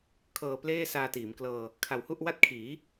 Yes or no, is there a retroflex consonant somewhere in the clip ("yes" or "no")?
no